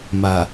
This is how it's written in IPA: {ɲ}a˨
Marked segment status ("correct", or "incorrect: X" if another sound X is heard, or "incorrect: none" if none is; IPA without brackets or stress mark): incorrect: m